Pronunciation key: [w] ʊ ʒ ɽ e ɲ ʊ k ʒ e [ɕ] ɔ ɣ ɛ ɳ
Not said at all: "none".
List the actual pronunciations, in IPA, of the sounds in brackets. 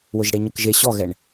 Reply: w, ɕ

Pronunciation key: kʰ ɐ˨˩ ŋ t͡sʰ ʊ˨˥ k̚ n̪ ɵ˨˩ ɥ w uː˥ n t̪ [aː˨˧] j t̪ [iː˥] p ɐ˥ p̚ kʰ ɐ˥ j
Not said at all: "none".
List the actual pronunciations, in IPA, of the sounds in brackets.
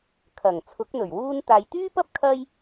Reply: aː˧, yː˥

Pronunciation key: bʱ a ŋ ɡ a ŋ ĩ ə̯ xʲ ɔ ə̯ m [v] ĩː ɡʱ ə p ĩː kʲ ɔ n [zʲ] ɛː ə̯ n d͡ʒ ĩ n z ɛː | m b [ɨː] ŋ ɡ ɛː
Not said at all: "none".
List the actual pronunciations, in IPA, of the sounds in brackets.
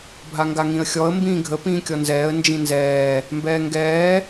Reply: b, z, ɛː

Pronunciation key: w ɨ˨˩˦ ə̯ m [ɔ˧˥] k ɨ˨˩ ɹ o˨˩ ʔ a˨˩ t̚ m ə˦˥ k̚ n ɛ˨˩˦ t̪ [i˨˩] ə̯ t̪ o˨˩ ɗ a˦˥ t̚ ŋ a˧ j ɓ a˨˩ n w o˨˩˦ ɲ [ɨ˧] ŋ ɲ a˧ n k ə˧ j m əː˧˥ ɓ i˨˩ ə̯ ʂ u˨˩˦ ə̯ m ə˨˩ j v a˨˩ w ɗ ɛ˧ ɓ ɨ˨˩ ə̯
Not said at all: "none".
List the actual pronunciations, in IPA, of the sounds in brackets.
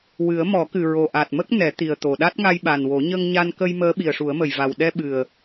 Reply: ɔ˨˩˦, i˨˩, ə˧

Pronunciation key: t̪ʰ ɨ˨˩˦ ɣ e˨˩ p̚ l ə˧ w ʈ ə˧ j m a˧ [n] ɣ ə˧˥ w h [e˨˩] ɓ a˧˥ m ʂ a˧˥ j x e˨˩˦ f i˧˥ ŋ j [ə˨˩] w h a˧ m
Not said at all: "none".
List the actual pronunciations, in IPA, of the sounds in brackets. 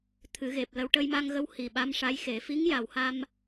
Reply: ŋ, i˨˩, a˨˩

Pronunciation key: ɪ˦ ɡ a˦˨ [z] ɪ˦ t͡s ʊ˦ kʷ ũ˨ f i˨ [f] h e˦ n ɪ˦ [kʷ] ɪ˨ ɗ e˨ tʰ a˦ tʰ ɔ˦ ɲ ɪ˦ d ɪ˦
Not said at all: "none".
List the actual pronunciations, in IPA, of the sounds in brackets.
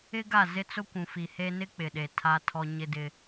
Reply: z, none, k͡p

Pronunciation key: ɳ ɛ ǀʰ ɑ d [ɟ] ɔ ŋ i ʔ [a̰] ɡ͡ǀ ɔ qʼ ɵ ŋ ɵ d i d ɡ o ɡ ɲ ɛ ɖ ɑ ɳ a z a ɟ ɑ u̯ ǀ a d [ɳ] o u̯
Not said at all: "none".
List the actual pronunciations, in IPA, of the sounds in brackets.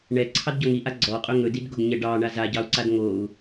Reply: ɟ, a, ŋ

